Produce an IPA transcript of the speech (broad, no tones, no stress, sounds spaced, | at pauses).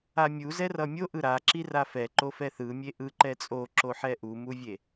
a mʲ u z ɛ r ʌ mʲ o ʔ ɯ ɾ a ǁ i r a f ɛ ǃ o f ɛ θ ɯ mʲ e ʔ ɯ ǃ ɛ t͡sʼ o ǁ o ħ ɛ ʔ u m u vʲ e